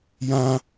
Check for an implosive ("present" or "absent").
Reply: absent